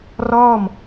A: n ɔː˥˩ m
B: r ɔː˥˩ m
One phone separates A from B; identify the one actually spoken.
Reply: B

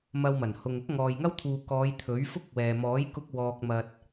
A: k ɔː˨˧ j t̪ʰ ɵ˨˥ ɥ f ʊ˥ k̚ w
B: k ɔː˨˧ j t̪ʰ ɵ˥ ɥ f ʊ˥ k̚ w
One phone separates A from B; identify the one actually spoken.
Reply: A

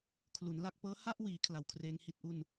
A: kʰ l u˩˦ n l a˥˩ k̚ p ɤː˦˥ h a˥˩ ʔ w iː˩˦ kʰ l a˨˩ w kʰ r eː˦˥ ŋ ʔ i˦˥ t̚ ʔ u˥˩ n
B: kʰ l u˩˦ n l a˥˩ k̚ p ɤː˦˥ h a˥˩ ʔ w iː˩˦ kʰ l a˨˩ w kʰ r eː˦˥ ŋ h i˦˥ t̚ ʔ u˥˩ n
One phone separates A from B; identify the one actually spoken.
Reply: B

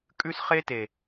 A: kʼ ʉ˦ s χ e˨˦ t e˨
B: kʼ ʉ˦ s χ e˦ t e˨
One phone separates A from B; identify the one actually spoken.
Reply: B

